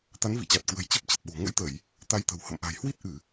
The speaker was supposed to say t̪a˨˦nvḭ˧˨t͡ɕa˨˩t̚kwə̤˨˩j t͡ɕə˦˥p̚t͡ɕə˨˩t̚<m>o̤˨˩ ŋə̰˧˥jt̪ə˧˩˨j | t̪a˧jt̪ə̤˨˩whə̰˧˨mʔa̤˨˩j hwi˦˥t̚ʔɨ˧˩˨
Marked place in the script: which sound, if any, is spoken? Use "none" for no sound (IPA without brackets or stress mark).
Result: ɓ